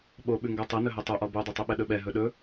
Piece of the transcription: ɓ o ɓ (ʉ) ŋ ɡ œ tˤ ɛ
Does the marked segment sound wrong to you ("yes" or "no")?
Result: no